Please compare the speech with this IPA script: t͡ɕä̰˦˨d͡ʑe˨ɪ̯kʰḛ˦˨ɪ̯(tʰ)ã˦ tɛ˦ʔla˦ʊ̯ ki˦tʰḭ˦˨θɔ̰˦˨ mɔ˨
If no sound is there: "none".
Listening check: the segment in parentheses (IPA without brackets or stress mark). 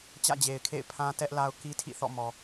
pʰ